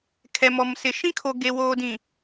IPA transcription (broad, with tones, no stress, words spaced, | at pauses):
kʰɛ˨mɔ˨msɪ˨ ʃĩ˦kʰo˨ɡe˨woː˨ dĩ˨